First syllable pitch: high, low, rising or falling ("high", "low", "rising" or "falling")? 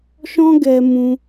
high